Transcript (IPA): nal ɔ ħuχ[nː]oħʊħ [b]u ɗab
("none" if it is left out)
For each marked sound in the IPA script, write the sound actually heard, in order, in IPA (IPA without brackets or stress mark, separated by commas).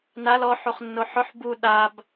nː, b